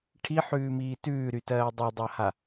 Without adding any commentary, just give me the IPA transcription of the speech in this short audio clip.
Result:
ʈʰ i ħ ʉː m iː t ʉː ɾ y t ɜː dˤ ʉ dˤ a h a

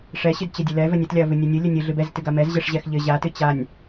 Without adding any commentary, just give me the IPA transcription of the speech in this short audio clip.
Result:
ʂ ɛ ɕ ɨ d t͡ɕ ɘ dʲ ə l ɛ v ɘ nʲ ɘ t lʲ a ɐ̯ v ɨ nʲ ɘ nʲ ɨ lʲ ɘ nʲ ɨ ɮ ɨ b ɛ z t ɨ ɡ a m ɛ z ʑ ɛ ʂ ʑ ɛ x ʎ ɘ ʑ a t ɨ t͡ɕ a nʲ

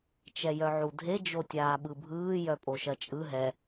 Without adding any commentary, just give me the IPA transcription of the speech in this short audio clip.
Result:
t͡ʃ ɛ j œ ʕ u dʱ e d͡ʒ o tʲ aː ɓ ɯ bʱ ɯː j œ pʼ o ʃ ɜ t͡ʃʼ ɯ ɦ ɛ

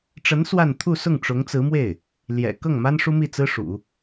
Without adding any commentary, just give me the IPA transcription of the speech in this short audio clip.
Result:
ʈ͡ʂ ə˧˥ n s w a˥˧ n t̪ʰ u˥˧ s ʊ˥˩ ŋ ʈ͡ʂ ʊ˧˥ ŋ t͡s ɹ̩˧˥ m w e˥˩ ɪ̯ | l j ɛ̰˨˩ k ɤ˥˩ ŋ m a˥ n ʂ u˥ m i˥˩ t͡s ɹ̩˥ ʂ ṵ˨˩˦

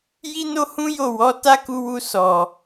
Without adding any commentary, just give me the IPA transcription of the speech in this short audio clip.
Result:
j i˦ n o˦ h ũ˦ j o˦˨ w ɔ˨˦ t a˦ k u˧ w u˧ s ɔ˨

